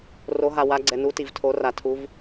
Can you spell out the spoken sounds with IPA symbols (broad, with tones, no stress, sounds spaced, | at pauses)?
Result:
r o˩˧ ɦ a˩ w a˩˧ ɡ͡ǀ ɛ˩ n u˩˧ t i˩ v tʰ o˩˧ r a˩ tʰ u˩˧ v